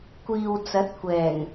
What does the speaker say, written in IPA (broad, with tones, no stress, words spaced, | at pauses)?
kʷiː˨wt͡sɐ˨˥t̚kʷɛː˨˩ŋ